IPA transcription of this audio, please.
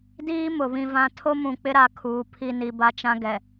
d iː˦ m ʊ˨ β ĩ˦ v ã˦ tʰ o˦ m ũ˨ k͡p ɪ˦ ɾ a˦ kʰ uː˨ pʰ i˦ n i˨ b a˦ t͡ʃ ã˦ ɡ ɛ˨

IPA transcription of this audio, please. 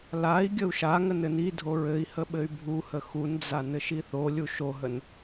l a i̯ ɡʲ ə u̯ ʃ a ŋ ə n ɘ n i dʱ o ɹ ɘ i̯ h ə ɓ ɘ y̯ bʱ u h ə x u n d͡z a n ɘ ʃ i θ o lʲ u ʃ o ɦ ə n

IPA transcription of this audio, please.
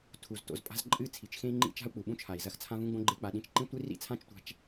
tʰ u˨ z t o̰˧ z pʼ a̤˦ z ǃʼ ɨ˦˨ t͡sʰ i˨ t͡ʃ x ẽ˦ i̯ ŋ͡ǃ ḭ˦ t͡ʃ a̤˦ u̯ k͡p u˨ ɓ ũ˦ t͡ʃʰ a˨ i̯ z ɐ˧ x t͡sʰ ã˦ v ũ˦ ɡ͡b õ˦ ɡ͡ǃ e˦ k͡p a˧ ɗ ĩ˧ t͡ʃ ǃ ĩ˦ tʷ i˦ r ḭ˦ t͡sʰ ã˦ t͡ʃ tʷ a̤˧ t͡ʃ

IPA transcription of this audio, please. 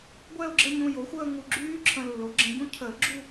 ɡʷ ɛ˥˧ ʊ̯ ɡ͡ǁ ə˥˧ ɲ ũ˧ j o˩˥ xʷ əː˥˧ ŋ u˧ ɡ͡ǁ yː˦˥ ǁʰ ə̃˧ lː o˩˥ ɡ͡ǁ ə̃˧ ɟ ũ˦˥ cʰ əː˨˩˦ ɡ͡ǁ u˥˧

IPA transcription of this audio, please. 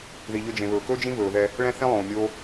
ð i˨ ʎ ɵ˧ d͡ʒ ẽ˨ β ɵː˨ k ɵː˦ d͡ʒ ĩ˦ β ɵː˨ ð ɛ˧ | ɭ ɛ̃˦ θ ẽ˦ lˠ õː˨ mʲ oː˦

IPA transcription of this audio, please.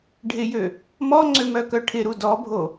ɖʱ ɪ j ø | m ɔ ŋ͡ǀ ø m œ k œ ʈʰ ɪ ɾ u d ɔ bʱ o

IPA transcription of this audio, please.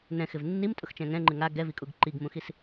n ɛ̃ x ɪ v nː i m tʼ ʊ x t͡ʃ ɛ̃ ŋ ɛ̃ ŋ͡ǃ ɪ ŋ a ɡ ɛ v i kʼ u ɡ ǃ i ɡ m ũ x i s

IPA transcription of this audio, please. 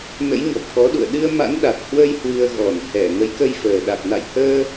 n ə̰˧˥ j ɲ ɔ˨˩ p̚ k ɔ˨˦ ɗ ṵ˧˨ ə̯ ɗ ɨ˧ ə̯ m a̰˧˥ n ɗ a˨˩ t̚ h w ə˧ j h w ɨ˧ ə̯ ɣ ɔ˧˩ n h ɛ˧˩ ŋ ə˨˦ j k ə˧ j f əː˨˩ ɗ a˨˩ k̚ n a̰˧˨ j h əː˧

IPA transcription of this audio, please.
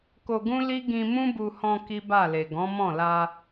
k o˧ ɡ ũ˦ l i˦ ɡ ĩ˧ m ũ˦ b u˧ h ɔ̃˧ k i˦ b a˦˨ l e˨ ɡ ɔ̃˨˦ m ɔ̃˦˨ l a˧

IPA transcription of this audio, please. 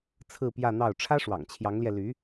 t͡sʰ ɹ̩˥˧ p j ä˥˧ n̪ ɑ˥˩ ʊ̯ ʈ͡ʂʰ ä˥ ʂ w ɑ̰˨˩ ŋ t͡ɕʰ j ɑ˧˥ ŋ l j ɛ˧ l y˧˥

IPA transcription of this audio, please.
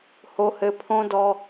h o˦ h ɘ˦ pʰ õ˦ d ɔ˦

